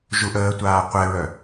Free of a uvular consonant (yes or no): no